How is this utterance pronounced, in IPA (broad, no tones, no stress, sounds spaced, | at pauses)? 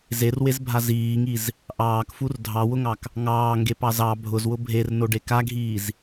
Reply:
z e r w e z bʱ a z iː ŋ i z | ʔ ɑː k f u r dʱ ɑ w ʊ ŋ ɑ k | ŋ ɑː ŋ ɡ e p ɑ z ɑ bʱ ʊ z w ʊ bʱ e r n o ɖ e k a ɡʱ iː z